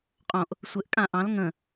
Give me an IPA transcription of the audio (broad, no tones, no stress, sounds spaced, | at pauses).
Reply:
qʼ õ ʔ | sʷ ɘ ʔ kʼ ã ʔ ɑ̃ l ŋ ə̃